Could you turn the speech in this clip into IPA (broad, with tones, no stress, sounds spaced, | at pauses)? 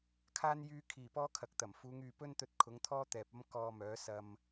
kʰ aː˥ n j yː˧ kʰ iː˨˩ p ɔː˥ kʰ ɐ˨˥ k̚ t̪ ɐ˨˩ m f uː˨˧ ŋ yː˨ p ɵ˥ n t̪ ɵ˧ t̚ kʰ ʊ˨˥ ŋ t̪ʰ ɔː˥ t̪ ɛː˨ p̚ ɐ˥ m k ɔː˧ m œː˨˥ s ɐ˥ m